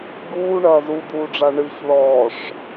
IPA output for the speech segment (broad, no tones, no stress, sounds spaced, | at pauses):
ɡ uː ɳ ɐː z u d̪ uː ɖ͡ʐ a ɳ ɨ ç ð ɔː ʂ